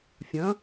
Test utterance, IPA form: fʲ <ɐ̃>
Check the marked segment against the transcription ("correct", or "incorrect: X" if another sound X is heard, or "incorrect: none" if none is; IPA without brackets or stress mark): correct